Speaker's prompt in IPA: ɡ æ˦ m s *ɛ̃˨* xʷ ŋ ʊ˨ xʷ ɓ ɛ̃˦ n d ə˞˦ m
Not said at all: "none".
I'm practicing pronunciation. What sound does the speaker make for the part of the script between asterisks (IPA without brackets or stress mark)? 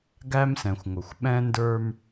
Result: ɛ̃˨